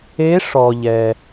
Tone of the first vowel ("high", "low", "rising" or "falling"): rising